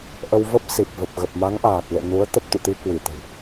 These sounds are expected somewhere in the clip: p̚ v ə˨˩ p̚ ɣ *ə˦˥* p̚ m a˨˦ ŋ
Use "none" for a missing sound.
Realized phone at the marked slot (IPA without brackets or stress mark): ə˨˩